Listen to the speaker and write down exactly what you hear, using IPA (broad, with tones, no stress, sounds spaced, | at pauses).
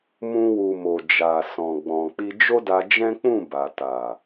m ũ˧ w u˨ m o˨ d͡ʒ a˨ s ɔ̃˨ ɡ͡b ɔ̃˨ k͡p i˧ d͡ʒ o˦ d a˧ d͡ʒ ɛ̃˦ k͡p ũ˦˨ b a˨ t a˨